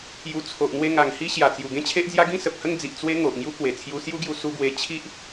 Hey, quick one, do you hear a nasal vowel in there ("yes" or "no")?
yes